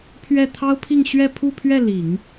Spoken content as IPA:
pʰ ɥ ɛ˥˩ t̪ʰ ɑ˥ ʊ̯ pʰ i˥˧ ŋ ɕ ɥ ɛ˥˧ pʰ u˥˧ pʰ ɥ ɛ˥˩ l i˨˩˦ ŋ

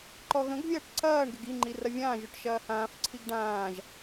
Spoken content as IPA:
ǃ ɔ ɣ ə̃ ɡ vʲ ɐː ʈ ǀ ɐː ɳ ɡ ɪ ɡ i ŋ͡ǃ i r ɐ vʲ ãː ʒ o ʈ ʃ ɐː h ãː f ǀʰ i ɡ ɖ ãː ʒ

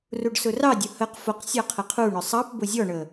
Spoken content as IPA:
r u ɖ s ʊ r ɑ dʲ ʊ h ə q f ʊ q sʲ ɑ qʰ ə qʰ u ɳ ʊ sˤ ɑ p b ʊ zʲ ɔ ɳ ə

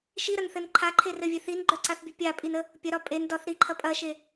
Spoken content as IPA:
ʃ i ɾ ɐ n θ ɘ n ǃʰ a ǃʰ e r ɘ vʲ e θ i n ɡ͡ǃ œ ǀ a θ bʲ ə pʲ a pʼ i n ə | pʲ ɐ ɾ ɒ pʼ e n d ɒ θ ɾ i ǃʰ ɐ pʼ ɐ ʃ e

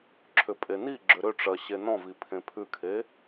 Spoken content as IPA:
ǁʰ ʏ pʼ e n i ɡ͡ǁ ʏ ɾ ʏ ʈ͡ʂ ɜ ɕ e n ɔ̃ v i pʰ ẽ pʰ ʉ kʰ e

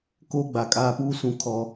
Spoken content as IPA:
k oː˦ ɡ͡b a˨ kʼ aː˦ p uː˦ s ũ˨ kʰ ɔ˦

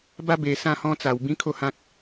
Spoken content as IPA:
b a˦ b e˧ s ã˥˧ h ɔ̃˦ t͡s a˧ w b ĩ˦ kʰ o˥˧ h ã˦ k̚

